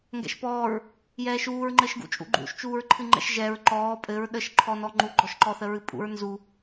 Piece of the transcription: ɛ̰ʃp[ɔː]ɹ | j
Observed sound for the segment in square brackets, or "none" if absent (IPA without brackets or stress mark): ɔː